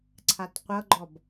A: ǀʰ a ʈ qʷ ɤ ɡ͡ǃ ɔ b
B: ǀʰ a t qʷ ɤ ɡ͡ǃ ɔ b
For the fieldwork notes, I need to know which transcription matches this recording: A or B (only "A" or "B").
B